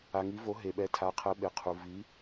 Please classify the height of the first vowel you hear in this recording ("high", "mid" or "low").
low